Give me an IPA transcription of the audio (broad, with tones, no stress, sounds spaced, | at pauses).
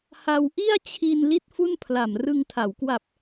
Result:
h a˧ w ʔ i˥˩ a̯ t͡ɕʰ i˧ n l i˥˩ t̚ f u˥˩ n pʰ l a˨˩ m r ɯ˧ ŋ tʰ a˩˦ w k w a˨˩ p̚